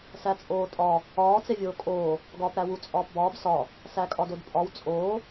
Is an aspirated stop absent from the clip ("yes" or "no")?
yes